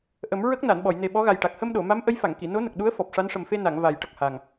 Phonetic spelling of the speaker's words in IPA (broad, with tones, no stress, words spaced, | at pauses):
ʔə˨˩˦mɹə˦˥k̚ na˨˩˨nɓɔ˨˩˨jne˨˩ ɓɔ˧˥ɣa˨˩jʈa˨˩k̚ hə˧mɗo˨˩˨ma˧˥m ʔə˧˥jfa˨˩˨ŋki˨˩˨ no˧˥nə˨˩k̚ɗu˧˥ə̯ fɔ˨˩p̚ʂa˧˥nʂə˨˩m fe˧na˨˩˨ŋ va˨˩jʈə˨˩k̚ha˨˩ŋ